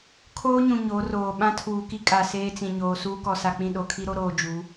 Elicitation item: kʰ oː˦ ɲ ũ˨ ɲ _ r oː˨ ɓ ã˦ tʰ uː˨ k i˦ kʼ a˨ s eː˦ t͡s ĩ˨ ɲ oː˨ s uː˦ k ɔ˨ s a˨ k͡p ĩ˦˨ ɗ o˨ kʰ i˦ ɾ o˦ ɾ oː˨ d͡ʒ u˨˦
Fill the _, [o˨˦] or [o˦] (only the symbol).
o˨˦